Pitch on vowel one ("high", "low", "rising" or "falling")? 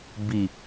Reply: low